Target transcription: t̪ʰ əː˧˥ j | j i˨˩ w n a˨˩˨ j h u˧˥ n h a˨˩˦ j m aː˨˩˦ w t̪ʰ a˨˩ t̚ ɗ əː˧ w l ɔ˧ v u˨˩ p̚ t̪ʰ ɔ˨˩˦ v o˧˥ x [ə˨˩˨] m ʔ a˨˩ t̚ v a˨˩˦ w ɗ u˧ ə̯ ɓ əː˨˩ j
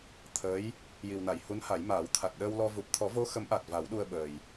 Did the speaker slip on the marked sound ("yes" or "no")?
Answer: yes